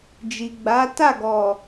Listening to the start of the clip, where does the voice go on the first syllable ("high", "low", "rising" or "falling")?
low